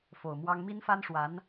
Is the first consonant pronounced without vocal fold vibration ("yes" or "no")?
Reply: yes